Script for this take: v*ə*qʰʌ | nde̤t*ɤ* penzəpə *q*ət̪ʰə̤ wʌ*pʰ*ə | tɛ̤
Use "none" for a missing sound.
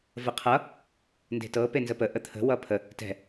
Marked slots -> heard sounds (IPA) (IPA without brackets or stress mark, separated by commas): ə, ɤ, ʔ, pʰ